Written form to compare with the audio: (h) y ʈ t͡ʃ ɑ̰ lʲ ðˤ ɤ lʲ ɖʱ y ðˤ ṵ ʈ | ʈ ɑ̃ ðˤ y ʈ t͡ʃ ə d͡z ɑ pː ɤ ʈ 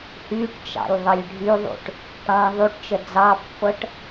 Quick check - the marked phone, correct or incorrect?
correct